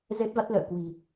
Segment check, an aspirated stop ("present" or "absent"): absent